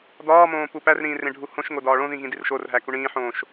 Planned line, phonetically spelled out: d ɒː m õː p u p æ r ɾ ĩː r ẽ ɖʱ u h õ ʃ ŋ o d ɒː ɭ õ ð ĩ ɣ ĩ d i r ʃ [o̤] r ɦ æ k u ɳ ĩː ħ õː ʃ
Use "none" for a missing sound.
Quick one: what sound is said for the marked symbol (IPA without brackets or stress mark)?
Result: o